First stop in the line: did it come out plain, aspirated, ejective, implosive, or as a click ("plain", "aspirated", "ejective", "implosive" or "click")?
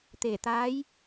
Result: plain